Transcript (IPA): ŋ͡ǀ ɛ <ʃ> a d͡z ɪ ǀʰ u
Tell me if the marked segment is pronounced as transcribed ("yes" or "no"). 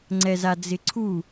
no